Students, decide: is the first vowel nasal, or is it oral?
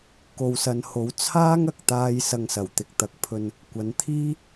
oral